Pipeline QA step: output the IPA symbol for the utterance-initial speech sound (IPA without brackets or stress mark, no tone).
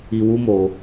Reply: i